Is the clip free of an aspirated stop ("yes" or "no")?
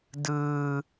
yes